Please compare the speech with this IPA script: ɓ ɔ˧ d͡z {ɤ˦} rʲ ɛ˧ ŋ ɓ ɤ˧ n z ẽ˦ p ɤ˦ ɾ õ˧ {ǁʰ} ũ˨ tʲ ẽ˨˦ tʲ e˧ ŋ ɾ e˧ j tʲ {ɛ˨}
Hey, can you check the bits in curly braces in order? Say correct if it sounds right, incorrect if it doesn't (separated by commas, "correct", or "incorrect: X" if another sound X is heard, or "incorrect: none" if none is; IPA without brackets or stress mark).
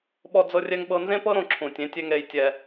incorrect: ɤ˧, correct, incorrect: ɛ˧